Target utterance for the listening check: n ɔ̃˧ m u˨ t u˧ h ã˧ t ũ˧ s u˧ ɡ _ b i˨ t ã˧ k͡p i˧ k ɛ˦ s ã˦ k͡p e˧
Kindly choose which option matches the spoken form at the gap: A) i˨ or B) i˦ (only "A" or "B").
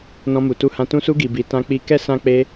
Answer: A